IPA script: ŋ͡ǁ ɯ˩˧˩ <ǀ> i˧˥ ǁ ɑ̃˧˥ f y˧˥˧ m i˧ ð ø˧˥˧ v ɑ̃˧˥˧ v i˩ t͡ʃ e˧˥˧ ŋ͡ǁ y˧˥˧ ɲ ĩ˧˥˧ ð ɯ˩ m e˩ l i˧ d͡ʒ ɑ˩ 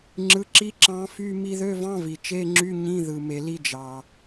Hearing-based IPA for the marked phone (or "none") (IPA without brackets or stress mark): ǁ